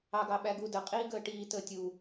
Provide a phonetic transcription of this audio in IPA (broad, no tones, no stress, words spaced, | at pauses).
ɑɡɑɓæɡu dəqʼiːɡəː ʈiː təːtʲu